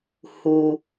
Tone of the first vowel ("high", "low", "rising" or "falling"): low